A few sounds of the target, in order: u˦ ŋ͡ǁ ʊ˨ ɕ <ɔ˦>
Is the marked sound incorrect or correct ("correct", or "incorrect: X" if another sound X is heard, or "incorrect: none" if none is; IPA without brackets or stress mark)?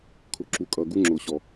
incorrect: ɔ˨